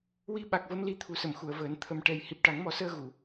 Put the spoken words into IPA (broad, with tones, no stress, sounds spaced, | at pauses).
w i˧ ɓ a˨˩ k̚ v ə˧ m l i˧ t̪ʰ u˨˩ s ə˨˩˨ m x u˨˩˨ ə̯ v əː˨˩˦ n t̪ʰ ə˨˩ m ʈ ɛ˨˩ j h i˨˩ p̚ ʈ a˨˩˦ ŋ m ɔ˨˩˦ s əː˧ ɣ u˨˩˨